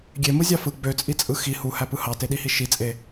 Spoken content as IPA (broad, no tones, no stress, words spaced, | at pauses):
ɡʲemɯzʲɑ fɯ ɡ͡bøt͡sʼit͡sʼɯ xi huhæpɯ hɑteɗihi ʃit͡sʼe